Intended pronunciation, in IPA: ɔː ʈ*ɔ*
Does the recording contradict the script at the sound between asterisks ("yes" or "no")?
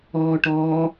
yes